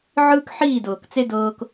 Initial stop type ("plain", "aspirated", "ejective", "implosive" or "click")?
plain